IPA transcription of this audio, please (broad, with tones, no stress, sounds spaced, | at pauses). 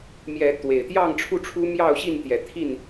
m j ɛ˨˦ t̪ w e˨˩ ɪ̯ t̪ j ɑ˥˨ ŋ ʈ͡ʂʰ u˥˨ ʈ͡ʂʰ u˦ m j ɑ˥˨ ʊ̯ ɕ i˥˨ n t̪ j ɛ˨˦ t̪ʰ i˥˨ n